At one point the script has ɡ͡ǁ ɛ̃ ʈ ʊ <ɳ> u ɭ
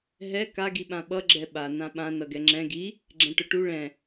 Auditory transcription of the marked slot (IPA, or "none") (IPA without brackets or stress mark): ʈ